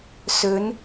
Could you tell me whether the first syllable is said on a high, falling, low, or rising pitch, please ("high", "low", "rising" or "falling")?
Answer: rising